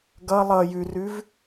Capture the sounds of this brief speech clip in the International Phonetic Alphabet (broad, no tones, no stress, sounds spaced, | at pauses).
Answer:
ɡ ʌ lˠ ʌ j ʉ r ʉ v